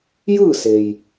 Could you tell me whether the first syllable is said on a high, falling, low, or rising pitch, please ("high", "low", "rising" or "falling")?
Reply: falling